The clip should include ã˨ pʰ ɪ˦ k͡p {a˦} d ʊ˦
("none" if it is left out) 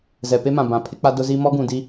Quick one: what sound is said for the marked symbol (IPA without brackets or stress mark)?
a˦